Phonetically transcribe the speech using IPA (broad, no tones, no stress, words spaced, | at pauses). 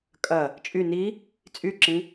kʼɐ | t͡ʃʼy ni | t͡sʼyǁĩ